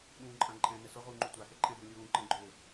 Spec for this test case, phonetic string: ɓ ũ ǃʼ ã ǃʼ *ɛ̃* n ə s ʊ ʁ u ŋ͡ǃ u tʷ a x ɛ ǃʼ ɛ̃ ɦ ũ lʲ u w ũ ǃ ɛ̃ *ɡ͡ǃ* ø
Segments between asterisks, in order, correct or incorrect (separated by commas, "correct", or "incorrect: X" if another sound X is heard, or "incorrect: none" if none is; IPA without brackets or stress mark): correct, correct